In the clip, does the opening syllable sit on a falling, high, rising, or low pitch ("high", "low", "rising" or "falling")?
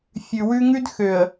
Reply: low